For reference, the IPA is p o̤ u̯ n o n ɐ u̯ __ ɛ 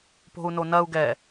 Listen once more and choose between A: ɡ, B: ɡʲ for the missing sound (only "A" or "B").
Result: A